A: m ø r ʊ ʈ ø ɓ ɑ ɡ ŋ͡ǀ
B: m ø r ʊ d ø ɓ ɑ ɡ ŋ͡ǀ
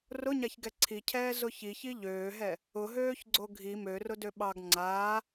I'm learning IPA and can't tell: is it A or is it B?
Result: B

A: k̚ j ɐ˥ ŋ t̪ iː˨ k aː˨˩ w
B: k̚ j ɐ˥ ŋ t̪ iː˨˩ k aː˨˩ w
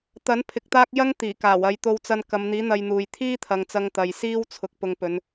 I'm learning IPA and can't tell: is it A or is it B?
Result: B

